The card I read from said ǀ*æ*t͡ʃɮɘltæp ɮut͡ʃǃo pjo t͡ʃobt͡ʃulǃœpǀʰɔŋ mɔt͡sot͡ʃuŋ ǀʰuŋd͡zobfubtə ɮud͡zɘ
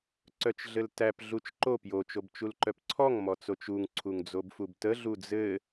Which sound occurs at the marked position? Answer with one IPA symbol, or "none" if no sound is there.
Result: œ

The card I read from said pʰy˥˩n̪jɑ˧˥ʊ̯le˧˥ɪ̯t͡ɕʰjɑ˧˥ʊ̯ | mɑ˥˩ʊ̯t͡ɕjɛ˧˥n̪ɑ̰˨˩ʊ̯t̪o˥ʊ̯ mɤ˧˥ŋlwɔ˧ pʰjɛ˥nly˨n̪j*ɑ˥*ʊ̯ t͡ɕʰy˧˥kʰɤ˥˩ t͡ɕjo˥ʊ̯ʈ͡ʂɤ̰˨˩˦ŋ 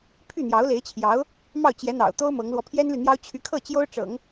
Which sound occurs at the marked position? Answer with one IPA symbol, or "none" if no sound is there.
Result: ɑ˥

